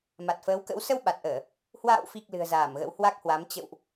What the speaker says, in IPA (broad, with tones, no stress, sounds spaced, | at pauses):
m a˨˩ t̚ f əː˨˦ w k ə̰˧˥ w s ə˧ w ɓ a˨˩ t̚ ʔ əː˧˩˨ | h w a̰ː˧˨ w f i˨˩ k̚ l ɨ̤˨˩ ə̯ z aː˧˩ m ɣ ə̰˧˥ w h w a˦˥ k̚ h w a˨˦ m t͡ɕ ə̰˧˨ w ʔ